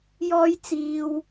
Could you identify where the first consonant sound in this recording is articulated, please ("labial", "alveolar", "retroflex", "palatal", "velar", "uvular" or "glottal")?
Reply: palatal